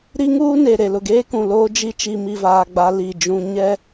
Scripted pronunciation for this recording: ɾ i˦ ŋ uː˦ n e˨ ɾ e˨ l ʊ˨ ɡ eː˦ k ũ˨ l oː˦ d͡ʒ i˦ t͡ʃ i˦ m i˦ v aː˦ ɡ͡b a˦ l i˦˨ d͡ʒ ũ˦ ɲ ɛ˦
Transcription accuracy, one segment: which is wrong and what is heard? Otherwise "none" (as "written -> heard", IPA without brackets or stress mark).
none